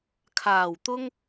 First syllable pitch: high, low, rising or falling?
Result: low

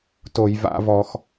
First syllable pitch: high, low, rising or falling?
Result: low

